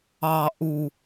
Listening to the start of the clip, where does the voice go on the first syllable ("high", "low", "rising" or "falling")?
low